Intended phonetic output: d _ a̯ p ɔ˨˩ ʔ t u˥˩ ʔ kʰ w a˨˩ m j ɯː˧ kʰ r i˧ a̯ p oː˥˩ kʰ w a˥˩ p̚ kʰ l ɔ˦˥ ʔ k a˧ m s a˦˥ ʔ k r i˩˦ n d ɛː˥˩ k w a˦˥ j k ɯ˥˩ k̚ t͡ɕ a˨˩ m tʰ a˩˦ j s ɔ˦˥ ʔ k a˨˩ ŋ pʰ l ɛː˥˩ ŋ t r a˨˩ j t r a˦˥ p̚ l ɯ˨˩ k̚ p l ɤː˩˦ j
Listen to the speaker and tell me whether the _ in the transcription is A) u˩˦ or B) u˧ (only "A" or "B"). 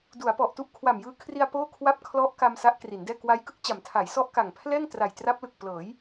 A